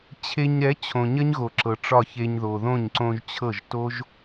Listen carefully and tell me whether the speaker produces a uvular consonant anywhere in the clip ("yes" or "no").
no